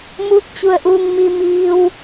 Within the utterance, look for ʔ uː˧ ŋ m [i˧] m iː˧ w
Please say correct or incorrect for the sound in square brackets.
correct